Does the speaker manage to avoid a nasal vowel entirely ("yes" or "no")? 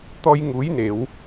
yes